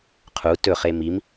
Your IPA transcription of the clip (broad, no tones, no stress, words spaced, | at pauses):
qʰu tɵχe mim